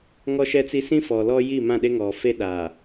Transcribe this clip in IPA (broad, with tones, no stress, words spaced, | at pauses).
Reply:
ŋɔ˦ʃɛ˦t͡si˦ sĩ˦fɔ˨ lɔ˦ji˦˨mã˦˨ɗe˦ ŋɔ˨fe˦ɗaː˨